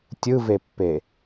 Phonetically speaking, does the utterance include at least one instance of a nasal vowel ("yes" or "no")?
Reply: no